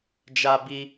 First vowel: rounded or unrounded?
unrounded